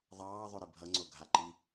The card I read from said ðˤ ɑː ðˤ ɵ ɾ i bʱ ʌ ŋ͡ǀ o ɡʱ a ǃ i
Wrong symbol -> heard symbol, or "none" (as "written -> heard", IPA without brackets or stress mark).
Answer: none